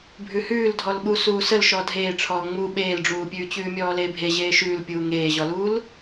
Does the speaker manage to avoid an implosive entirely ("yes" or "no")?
no